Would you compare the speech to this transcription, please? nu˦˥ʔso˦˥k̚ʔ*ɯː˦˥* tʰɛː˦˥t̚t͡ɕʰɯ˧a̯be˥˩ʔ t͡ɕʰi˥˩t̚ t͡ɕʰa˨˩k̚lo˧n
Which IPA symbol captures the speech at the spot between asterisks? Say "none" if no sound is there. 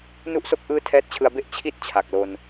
ɯː˦˥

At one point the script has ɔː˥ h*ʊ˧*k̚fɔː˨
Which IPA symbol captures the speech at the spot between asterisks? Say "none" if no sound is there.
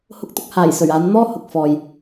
ʊ˨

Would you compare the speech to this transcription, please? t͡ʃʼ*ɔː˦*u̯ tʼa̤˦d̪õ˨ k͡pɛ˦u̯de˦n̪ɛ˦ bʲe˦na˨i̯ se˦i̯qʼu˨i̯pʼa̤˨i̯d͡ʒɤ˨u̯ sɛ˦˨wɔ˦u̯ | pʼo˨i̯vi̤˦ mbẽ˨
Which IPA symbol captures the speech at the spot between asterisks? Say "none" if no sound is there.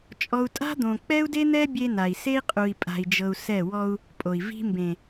ɔ˦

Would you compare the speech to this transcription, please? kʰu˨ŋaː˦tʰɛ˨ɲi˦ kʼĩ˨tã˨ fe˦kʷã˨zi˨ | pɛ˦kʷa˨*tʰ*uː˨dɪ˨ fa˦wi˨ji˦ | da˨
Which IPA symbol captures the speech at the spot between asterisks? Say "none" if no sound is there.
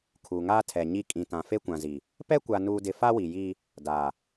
n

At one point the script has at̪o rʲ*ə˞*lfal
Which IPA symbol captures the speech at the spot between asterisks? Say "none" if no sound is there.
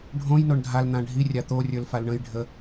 ə˞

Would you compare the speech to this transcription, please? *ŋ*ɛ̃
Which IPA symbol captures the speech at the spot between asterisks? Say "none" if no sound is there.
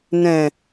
n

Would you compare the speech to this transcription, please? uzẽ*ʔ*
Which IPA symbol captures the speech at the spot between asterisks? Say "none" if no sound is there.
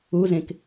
k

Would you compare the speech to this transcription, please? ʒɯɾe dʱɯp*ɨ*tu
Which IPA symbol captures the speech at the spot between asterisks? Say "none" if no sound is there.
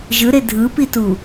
i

